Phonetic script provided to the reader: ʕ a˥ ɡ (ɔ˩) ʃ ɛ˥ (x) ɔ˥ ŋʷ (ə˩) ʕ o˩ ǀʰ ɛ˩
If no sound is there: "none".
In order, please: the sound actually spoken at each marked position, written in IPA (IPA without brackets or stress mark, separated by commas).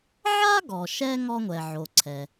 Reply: ɔ˩, ŋ, ɛ˩